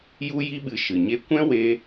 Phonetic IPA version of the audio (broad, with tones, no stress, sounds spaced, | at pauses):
j u˦ j i˦ ɓ ɨ˧ ʃ ɨ˨ ɲ e˦ kʷ ɛ̃˦ w e˧